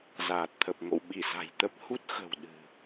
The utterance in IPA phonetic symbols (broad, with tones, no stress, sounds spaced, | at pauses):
z aː˨˩ t̚ t̪ʰ ə˨˩ p̚ ŋ o̰˧˨ w ɓ i˧˩ s a̤˨˩ j t̪ ə˦˥ p̚ h u˦˥ t̚ x ə̤˨˩ w ɗ ɨ̤˨˩